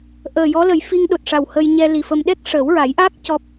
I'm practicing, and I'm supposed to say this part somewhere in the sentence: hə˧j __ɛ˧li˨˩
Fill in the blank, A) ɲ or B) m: A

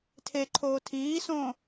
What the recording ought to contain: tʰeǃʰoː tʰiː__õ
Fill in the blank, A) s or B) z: A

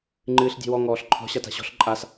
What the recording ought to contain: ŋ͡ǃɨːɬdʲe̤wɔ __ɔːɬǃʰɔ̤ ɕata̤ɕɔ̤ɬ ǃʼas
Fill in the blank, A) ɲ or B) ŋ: B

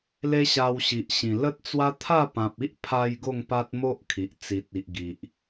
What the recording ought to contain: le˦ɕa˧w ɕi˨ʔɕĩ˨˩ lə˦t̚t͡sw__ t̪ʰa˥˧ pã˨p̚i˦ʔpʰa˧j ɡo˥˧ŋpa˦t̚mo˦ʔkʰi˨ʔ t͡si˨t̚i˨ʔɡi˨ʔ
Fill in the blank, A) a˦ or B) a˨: A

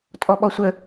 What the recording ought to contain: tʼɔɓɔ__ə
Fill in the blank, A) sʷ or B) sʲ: A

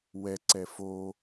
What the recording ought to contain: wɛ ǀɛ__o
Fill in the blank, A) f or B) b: A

